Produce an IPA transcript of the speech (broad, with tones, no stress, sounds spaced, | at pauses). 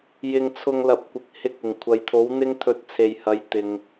j ɪ˧ ŋ t͡sʰ ʊ˧ ŋ l ɐ˨˥ p̚ kʷ ɪ˨ k̚ h ɪ˧ k̚ ɪ˨˩ ŋ kʷʰ ɐ˨ j t̪ʰ o˨˥ w n̪ ɪ˥ ŋ t̪ʰ ɵ˧ t̚ t͡sʰ e˨ j h ɐ˨˧ j t̪ ɪ˨ ŋ